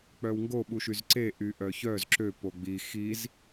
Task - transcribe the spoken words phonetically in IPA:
k͡p œ w ŋ ɡ o ɓ u ʃ y z ǀ e ʔ y ʔ œ ç œ z ǁ ø p o ɡ͡b i x i z

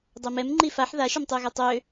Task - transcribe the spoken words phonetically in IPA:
dˤ ɛ m ɛ m ŋ͡ǃ i f a ħ ð a ʃ ø m tˤ ø ɣ ɛ tˤ ø

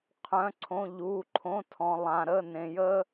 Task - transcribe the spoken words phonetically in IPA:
qʰ œ̃˩˧˩ ǀʰ õ˩˧˩ ʎ u˩˧˩ ǃʰ õ˩˧˩ tʰ ɔ̃˩ lˠ ã˩ ɾ ə˩˧˩ n ẽ˩ j ə˦

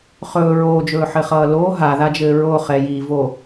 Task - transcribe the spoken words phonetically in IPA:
χ ɵː ɹ oː d͡ʒ ɵː ħ ɘ χ ʌː l oː ɦ a ð a d͡ʒ ɘː ɹ o χ ɛ j i v o

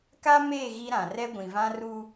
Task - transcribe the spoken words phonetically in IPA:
k a˦ m eː˦˨ ɣ i˦ ɾ ã˨ r ɛ˦ ɡʷ ĩ˨ v ã˦ r u˦

